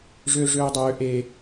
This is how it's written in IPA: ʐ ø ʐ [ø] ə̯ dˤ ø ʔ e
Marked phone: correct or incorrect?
correct